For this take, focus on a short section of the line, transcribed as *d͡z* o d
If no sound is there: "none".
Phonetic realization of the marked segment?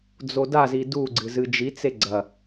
d͡z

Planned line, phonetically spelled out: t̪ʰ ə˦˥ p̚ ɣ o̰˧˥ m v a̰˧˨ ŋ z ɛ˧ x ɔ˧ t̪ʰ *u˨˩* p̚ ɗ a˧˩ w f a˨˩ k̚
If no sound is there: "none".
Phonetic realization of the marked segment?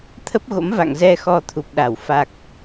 u˨˩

